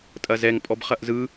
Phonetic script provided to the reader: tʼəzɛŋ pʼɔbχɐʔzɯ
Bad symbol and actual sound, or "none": ə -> ɐ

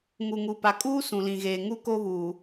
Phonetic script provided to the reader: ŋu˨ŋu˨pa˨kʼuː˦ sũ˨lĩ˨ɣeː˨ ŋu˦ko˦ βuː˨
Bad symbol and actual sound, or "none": none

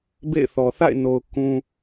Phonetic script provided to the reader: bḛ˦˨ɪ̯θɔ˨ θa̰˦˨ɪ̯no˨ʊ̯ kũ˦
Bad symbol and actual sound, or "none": none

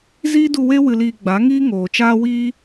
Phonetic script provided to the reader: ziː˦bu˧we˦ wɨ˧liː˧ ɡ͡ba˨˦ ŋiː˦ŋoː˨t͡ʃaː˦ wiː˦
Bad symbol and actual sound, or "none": b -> d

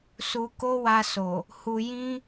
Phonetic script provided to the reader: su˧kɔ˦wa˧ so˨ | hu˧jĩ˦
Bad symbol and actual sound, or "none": ɔ˦ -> o˦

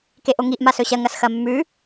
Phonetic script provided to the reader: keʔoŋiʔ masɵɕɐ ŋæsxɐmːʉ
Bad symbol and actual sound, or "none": æ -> ɐ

